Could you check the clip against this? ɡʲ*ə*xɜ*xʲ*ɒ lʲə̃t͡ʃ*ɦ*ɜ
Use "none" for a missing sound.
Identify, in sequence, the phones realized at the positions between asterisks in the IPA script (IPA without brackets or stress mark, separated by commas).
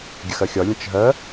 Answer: ə, xʲ, ɦ